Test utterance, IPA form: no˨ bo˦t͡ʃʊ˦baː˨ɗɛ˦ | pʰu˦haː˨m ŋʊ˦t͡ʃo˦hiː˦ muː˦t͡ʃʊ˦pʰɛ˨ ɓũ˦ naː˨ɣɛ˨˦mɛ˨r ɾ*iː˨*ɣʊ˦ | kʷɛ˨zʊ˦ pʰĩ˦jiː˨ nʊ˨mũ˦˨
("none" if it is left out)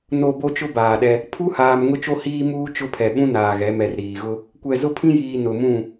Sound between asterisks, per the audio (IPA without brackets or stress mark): iː˨